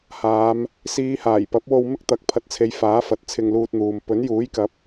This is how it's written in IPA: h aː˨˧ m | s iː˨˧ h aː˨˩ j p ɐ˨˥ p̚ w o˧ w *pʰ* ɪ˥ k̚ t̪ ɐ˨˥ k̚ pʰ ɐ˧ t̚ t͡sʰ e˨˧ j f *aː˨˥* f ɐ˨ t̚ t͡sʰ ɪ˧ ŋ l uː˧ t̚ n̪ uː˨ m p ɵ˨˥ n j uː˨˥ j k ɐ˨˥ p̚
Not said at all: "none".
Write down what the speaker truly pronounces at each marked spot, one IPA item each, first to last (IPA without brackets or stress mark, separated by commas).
m, aː˨˥